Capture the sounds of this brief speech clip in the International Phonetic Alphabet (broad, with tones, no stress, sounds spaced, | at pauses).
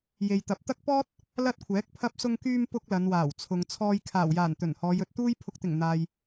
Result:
j e˨ j t̪ ɐ˨˥ p̚ t̪ ɐ˥ k̚ p ɔː˥ t̚ | l ɐ˥ t̚ kʷʰ ɛː˨˥ k̚ pʰ ɐ˧ p̚ s ʊ˧ ŋ k yː˧ m p ʊ˥ k̚ l ɐ˨˧ n w aː˨˩ w t͡sʰ ʊ˨ ŋ t͡sʰ ɔː˧ j kʰ aː˨˩ w j aː˨˩ n t̪ ɵ˨˩ n h ɔː˨˧ j ɵ˧ t̚ t̪ uː˥ j pʰ ʊ˨ k̚ t̪ ɪ˨˩ ŋ n̪ aː˨ j